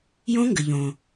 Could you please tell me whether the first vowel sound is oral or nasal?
nasal